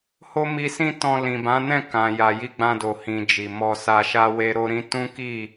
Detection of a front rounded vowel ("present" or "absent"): absent